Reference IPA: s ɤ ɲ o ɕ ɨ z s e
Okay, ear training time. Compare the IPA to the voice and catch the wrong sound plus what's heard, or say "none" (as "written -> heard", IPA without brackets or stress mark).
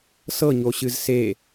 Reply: none